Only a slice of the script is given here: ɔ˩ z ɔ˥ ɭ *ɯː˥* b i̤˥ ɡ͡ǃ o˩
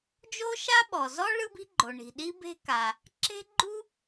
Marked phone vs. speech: incorrect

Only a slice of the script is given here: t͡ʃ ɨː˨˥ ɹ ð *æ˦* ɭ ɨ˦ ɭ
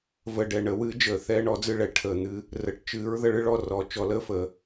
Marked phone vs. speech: incorrect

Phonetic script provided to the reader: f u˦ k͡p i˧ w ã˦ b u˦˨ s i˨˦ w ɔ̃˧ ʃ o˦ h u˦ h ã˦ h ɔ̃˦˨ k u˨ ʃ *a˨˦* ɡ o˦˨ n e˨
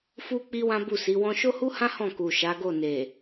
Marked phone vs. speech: correct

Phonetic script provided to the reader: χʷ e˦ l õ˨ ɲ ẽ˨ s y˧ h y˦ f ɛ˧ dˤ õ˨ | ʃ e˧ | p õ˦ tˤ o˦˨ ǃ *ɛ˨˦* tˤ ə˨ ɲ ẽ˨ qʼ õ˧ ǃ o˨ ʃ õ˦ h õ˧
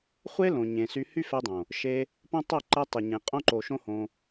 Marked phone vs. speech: incorrect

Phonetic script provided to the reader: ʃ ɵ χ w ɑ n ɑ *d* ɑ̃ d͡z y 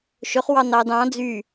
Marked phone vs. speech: correct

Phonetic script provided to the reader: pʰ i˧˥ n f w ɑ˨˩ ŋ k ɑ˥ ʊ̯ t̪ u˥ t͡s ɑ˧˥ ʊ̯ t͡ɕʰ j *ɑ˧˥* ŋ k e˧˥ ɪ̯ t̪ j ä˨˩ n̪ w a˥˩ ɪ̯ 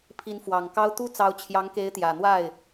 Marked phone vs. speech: correct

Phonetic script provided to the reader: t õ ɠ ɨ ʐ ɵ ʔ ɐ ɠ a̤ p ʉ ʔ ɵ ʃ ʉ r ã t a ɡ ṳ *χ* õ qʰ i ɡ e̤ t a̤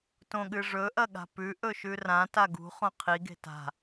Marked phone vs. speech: correct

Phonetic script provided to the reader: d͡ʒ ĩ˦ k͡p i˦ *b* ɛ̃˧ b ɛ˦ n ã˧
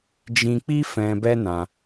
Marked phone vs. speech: incorrect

